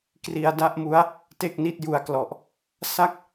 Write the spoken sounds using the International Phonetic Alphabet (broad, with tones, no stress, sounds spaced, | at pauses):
k r i˧ a̯ d a˥˩ ʔ m u˦˥ a̯ | t e˥˩ k̚ n i˦˥ t̚ j u˧ a̯ k l ɔ˨˩ ʔ | s a˥˩ k̚